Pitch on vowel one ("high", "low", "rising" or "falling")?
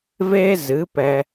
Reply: high